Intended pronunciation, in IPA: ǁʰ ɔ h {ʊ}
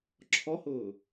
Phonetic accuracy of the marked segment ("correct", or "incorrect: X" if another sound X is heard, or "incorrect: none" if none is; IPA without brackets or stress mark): incorrect: ʊː